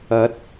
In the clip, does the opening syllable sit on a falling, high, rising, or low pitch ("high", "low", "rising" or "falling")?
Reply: rising